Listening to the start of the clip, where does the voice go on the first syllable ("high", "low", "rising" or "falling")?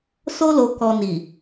high